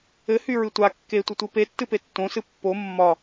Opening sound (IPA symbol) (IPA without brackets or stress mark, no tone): ɘ